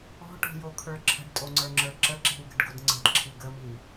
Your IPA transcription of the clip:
ɔ̤ ʈ o̤ j o kʰ ə˞ ǁʰ ə̤ ɖ tʼ o ŋ͡ǀ ə˞ ŋ͡ǁ ə˞ ǁ ə ǁ i̤ w ɡ ə̤ ɖ ɡ o d ŋ͡ǀ ə̤ d ǁʰ i ɡ ə m i

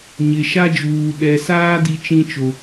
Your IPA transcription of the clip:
ɲ ɪ˨ ʃ a˦ d͡ʒ uː˨ ɗ ɛ˨ s aː˦ d i˦ t͡ʃ ĩ˦ t͡ʃ o˨

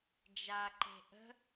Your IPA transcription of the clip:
d͡ʒ a ǃ e̤ ʔ ə̤

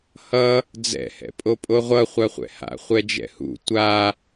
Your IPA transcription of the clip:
h ʌ | d͡z ɛ̰ h ɛ̰ pʼ o pʼ o ʁʷ ʌ χʷ a χʷ ɛ̰ h a̰ χʷ ɛ d͡ʒ ɛ̰ h ṵ tʷ a

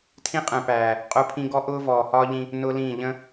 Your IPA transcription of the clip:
tʰ ĩ˦ qʼ ɛ̃˨ p æː˨ | qʼ ʊː˦ pʰ ĩ˦ ɡ ɔ˦ ʔ ʊː˦ v ɔː˨ h ɒː˦ ʎ ĩ˦ | n ʊː˦ l ĩː˦˨ ʎ ə̃˦

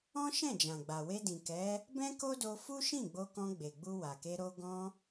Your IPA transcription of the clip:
ɔ̃˦ ʃ ɛ̃˦˨ d͡ʒ ã˨ ɡ͡b a˨ w e˧ d ĩ˨ k ɛ˨˦ | b ɛ̃˦ k o˦ d o˧ f u˦ ʃ ĩ˦˨ ɡ͡b o˧ k ɔ̃˧ ɡ͡b e˨ ɡ͡b u˧ w a˨ k e˧ ɾ o˧ ɡ ɔ̃˧

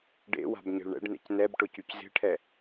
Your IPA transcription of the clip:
ɖ ḛ w a̤ b ɲ e̤ ɭ ɳ ɛ̰ ɖ n ḛ c n ɛ b ʈ ʊ c y c z e̤ ʈʰ ɛ

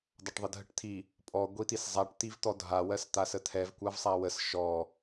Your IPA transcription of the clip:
dˤ a ʈ ðˤ ə dʱ ə ʈ t̪ʰ i | pʼ ɔ ɡʷ i t̪ i s zˤ a ʈ t̪ i v t̪ ɔ dʱ a w ɜ s t̪ a s ə t̪ʰ ɛ v kʷ a v sˤ a w ə s ʃ ɔ

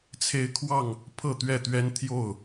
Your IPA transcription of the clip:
t͡sʰ e˦ ɪ̯ kʰ w ɑ˥˨ ŋ | pʰ ɤ˥˨ t̪ ɥ ɛ˥˨ t̪ ɥ ɛ˦ n t̪ʰ j o˥˨ ʊ̯

